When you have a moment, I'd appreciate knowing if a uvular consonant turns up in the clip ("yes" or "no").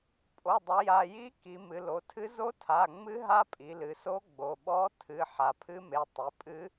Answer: no